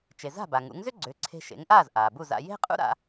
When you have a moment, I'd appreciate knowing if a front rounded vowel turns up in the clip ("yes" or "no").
yes